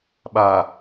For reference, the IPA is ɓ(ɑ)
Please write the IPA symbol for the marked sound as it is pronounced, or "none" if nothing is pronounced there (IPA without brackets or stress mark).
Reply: a